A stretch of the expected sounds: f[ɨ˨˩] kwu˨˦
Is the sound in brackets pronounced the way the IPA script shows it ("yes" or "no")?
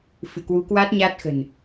no